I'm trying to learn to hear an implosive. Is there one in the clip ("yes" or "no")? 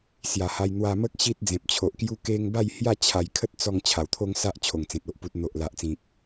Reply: no